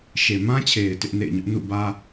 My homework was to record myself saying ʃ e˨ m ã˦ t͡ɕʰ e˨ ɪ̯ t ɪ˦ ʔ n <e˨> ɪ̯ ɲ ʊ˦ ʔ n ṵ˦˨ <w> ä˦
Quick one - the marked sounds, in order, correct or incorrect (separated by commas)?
incorrect, incorrect